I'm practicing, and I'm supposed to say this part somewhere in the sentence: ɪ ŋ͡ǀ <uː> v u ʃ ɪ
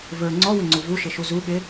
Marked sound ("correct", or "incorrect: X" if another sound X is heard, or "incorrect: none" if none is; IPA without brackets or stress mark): incorrect: u